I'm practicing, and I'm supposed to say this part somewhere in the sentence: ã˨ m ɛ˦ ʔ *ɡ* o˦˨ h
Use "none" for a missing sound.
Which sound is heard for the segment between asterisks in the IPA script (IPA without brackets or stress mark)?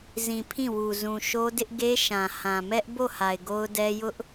b